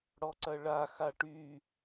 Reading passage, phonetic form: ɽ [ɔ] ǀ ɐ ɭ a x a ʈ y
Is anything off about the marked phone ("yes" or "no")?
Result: no